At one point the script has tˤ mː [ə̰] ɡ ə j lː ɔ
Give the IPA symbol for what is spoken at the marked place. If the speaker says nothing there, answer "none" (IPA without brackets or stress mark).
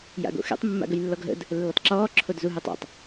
a̰